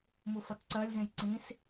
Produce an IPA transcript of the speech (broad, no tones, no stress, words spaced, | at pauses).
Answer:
mufʌtǀɜlʲzẽj ǀĩs